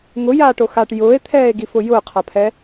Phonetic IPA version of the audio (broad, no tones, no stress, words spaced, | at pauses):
ŋʊjaːʈo xaʈ jʊːe̯t̪ʰɛːe̯ɡifʊ jʊːqʰapʰɛ